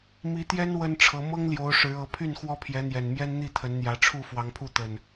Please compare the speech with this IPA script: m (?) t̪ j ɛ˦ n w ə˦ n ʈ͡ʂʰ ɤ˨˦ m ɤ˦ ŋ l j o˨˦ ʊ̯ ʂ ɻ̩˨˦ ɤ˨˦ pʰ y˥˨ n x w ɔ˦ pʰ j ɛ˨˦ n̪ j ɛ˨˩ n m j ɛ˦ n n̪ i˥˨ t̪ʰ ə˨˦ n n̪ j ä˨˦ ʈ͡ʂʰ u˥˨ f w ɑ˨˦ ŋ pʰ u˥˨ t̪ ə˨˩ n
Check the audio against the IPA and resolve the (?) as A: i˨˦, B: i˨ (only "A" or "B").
A